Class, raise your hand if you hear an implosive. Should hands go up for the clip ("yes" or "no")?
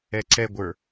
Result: no